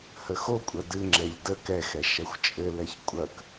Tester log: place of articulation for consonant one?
glottal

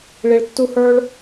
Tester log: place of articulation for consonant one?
retroflex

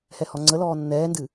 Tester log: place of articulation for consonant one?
glottal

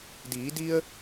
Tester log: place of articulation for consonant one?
alveolar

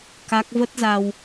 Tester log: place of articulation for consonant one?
velar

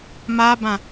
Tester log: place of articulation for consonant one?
labial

